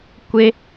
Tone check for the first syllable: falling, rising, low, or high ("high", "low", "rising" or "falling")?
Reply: high